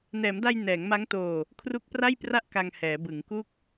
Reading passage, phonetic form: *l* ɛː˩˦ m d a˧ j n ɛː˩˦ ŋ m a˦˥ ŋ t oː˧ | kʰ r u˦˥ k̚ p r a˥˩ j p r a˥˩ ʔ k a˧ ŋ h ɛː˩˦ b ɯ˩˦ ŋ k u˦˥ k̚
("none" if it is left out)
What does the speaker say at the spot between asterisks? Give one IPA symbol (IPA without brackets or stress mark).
n